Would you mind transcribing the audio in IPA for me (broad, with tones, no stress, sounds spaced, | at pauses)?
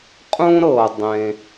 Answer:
qʼ ũ˥ ɾ ɤ˩ dˤ ẽ˩